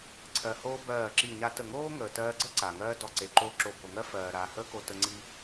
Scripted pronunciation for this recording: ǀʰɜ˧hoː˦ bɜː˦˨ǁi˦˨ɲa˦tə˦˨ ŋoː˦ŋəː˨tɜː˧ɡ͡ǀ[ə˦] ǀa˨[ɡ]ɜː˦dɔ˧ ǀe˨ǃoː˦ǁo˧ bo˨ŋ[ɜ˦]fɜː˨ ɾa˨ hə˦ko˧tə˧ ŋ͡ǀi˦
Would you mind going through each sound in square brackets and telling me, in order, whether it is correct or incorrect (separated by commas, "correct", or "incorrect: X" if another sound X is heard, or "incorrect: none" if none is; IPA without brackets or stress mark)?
correct, incorrect: ŋ, correct